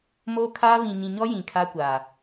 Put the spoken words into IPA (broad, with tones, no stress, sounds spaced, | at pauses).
m o˦ kʰ a˦ β ĩ˨ ɲ ĩ˨ ɲ ɔ˦ j ĩ˨ kʰ aː˦ kʷ aː˨